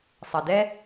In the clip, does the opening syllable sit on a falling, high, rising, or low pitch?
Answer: low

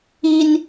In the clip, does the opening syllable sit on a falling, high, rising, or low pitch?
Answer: low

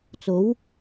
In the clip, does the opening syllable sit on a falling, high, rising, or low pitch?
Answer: rising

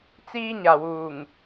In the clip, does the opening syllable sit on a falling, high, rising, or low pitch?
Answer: high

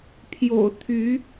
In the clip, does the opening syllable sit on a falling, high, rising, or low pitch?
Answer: low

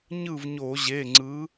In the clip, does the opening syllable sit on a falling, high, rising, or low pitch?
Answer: falling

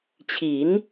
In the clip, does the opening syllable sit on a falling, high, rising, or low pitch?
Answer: rising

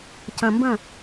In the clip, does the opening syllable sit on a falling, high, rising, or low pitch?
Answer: low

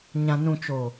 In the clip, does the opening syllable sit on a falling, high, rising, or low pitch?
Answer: low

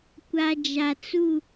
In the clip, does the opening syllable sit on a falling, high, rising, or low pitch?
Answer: low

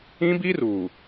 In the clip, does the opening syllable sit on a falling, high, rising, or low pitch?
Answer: high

